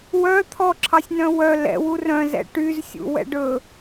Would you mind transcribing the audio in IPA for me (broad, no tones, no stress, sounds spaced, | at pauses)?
w œ t̪ʰ ɔ ǁʰ ɑ sʲ n œ̃ w œ l ɛ̰ w u r œ̃ z ɛ̰ ʈ y z sʲ ṵ w ɛ̰ ɖ ɵ